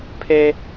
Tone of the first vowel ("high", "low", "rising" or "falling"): high